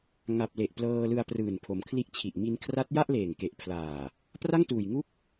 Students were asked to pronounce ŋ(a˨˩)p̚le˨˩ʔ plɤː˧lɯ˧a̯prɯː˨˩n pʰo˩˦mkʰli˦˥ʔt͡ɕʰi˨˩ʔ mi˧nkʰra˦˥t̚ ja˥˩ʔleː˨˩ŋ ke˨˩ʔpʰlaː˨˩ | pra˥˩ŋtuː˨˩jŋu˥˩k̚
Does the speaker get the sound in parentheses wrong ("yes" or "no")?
no